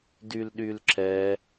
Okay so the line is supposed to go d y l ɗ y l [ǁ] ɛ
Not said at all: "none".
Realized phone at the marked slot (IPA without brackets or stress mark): ǁ